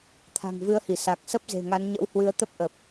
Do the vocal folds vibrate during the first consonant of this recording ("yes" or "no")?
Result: no